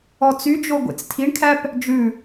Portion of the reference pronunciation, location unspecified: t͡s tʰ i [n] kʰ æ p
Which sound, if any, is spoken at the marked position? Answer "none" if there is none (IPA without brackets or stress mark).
ɳ